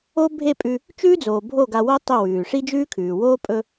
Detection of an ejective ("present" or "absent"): present